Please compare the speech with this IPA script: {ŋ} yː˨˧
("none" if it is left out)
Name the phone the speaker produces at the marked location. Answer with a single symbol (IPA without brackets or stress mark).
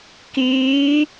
k